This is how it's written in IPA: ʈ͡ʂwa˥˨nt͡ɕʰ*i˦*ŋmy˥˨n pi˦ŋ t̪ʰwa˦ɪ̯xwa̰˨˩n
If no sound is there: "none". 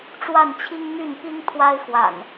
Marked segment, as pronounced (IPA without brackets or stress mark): i˦